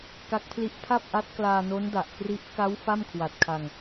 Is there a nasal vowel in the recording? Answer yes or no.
no